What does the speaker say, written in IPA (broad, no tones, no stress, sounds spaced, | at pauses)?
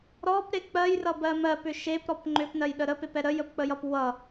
ɾ ɔ p ɾ e k͡p ɜ j r ʌ b ɜ m ɜ p ʏ ʃ e p ɾ ɔ p ŋ͡ǃ ʏ p n ɜ j ɗ ə ɾ ə p e p ɛ ɾ ə j ə p k͡p ə j ʌ p w ʌ